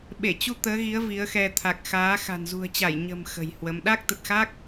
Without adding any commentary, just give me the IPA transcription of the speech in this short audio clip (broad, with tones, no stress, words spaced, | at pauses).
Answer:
ɓe˧˩t͡ɕu˧ t̪əː˨˦ɣi˨˦ə̯ vi˨˦ə̯xɛ˧ t̪ʰa˨˩k̚xaː˨˦xa̤˨˩n zṳ˨˩ə̯t͡ɕa˧˩j ɲə̤˨˩m xə̤˨˩jhwə˨˦m ɗa˦˥k̚t̪ə˨˩t̚xa˦˥k̚